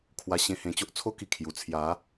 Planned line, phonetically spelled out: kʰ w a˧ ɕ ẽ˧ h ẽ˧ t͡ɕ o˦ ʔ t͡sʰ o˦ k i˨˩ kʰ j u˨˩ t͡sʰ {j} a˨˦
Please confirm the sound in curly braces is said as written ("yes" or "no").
yes